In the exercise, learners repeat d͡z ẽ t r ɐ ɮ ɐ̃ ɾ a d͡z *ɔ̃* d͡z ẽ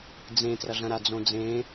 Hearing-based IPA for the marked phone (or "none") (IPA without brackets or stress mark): õ